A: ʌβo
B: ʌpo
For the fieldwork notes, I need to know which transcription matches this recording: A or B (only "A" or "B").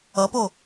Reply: B